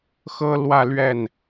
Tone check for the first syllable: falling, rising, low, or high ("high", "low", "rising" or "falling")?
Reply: high